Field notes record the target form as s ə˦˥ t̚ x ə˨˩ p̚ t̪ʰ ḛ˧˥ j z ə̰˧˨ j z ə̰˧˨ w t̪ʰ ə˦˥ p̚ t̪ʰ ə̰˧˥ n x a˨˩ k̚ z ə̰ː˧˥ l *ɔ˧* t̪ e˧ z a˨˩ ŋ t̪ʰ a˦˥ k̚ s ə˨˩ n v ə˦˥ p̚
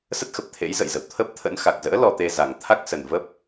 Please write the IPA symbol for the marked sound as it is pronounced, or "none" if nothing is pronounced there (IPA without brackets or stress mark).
ɔ˧